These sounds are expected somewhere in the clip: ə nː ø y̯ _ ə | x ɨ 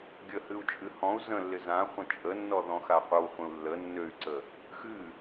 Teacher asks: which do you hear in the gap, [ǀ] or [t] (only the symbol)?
ǀ